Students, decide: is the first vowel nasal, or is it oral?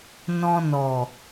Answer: nasal